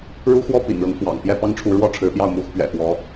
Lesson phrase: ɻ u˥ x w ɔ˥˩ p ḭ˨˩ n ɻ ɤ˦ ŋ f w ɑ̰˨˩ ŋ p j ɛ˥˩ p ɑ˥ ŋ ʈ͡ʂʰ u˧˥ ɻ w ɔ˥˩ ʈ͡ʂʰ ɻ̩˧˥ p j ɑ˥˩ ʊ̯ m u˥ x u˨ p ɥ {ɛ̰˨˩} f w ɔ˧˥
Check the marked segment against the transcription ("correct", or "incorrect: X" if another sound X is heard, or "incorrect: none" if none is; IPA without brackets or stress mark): correct